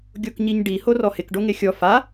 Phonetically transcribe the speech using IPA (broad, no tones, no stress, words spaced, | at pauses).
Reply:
ɡʲokɲiɲɖi horɔhɪk ɖoŋexʲɔ fa